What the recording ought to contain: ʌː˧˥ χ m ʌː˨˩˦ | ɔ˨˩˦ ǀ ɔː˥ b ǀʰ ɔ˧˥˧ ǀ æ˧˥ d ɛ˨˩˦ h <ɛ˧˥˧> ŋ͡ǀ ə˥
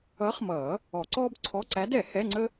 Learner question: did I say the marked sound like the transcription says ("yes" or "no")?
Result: yes